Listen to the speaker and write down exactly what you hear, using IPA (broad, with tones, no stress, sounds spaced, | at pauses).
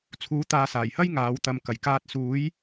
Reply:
t͡sʰ uː˨˥ t̪ aː˨ s aː˨˩ j h ɐ˥ j ŋ aː˨˧ w t̪ ɐ˨ m k ɐ˨˩ j k aː˨ t̚ s uː˨˧ j